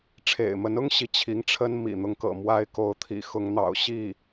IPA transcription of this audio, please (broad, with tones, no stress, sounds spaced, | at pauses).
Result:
ʈ͡ʂʰ ḛ˨˩ ɪ̯ m ə˧˥ n ʊ˥ ŋ ɕ i˥ t͡ɕʰ i˧˥ ŋ ʈ͡ʂʰ ə˥ n m ḭ˨˩ n̪ ʊ˧˥ ŋ k ɤ̰˨˩ m w a˥ ɪ̯ k o˧˥ ʊ̯ t̪ʰ ḭ˨˩ x ʊ˧˥ ŋ n̪ ɑ̰˨˩ ʊ̯ ɕ i˥˩